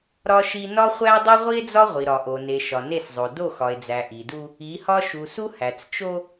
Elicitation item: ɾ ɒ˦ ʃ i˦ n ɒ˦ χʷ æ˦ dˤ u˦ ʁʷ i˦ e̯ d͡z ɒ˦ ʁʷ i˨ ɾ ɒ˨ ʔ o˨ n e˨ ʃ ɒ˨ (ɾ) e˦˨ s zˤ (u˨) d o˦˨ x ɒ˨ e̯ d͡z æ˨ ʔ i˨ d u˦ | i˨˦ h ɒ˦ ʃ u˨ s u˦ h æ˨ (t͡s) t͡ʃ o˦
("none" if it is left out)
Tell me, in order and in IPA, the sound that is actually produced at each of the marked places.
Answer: n, o˨, t͡s

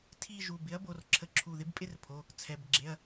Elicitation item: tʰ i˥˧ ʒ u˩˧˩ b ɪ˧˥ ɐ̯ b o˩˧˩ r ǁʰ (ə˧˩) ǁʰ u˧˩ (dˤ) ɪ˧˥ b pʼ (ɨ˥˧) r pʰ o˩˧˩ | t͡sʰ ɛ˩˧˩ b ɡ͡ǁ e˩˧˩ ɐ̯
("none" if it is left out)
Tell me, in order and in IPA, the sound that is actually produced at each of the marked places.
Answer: ə˧˩, ð, ɪ˥˧

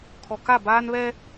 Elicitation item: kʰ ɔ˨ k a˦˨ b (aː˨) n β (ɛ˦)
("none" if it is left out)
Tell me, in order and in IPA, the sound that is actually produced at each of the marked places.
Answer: aː˦, ɛ˦

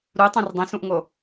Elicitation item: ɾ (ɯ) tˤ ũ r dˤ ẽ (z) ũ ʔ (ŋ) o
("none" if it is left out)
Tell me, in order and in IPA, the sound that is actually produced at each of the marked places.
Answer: u, s, ŋ

